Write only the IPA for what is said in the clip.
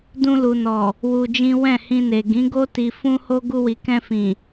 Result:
dũ˧lu˨nɔ˨ | wu˧d͡ʒĩ˦ wɛ̃˦˨hĩ˧ne˨ ɡĩ˨˦ɡo˦ ti˧fũ˦ho˦ ɡu˧wi˨kɛ̃˧fĩ˨

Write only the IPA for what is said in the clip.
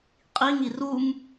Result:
qʼiŋi rum

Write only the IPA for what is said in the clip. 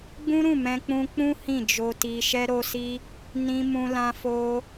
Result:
ɡ͡bũ˦ɾũ˦˨ mɛ̃˧ k͡pũ˧k͡pũ˦ hĩ˦˨d͡ʒo˧ti˧ ʃɛ˧ɾo˧si˧ | nĩ˧ mũ˧lã˧fo˧

